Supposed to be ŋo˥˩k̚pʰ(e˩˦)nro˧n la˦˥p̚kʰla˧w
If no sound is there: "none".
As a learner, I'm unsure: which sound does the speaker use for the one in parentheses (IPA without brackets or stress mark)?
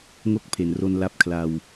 e˨˩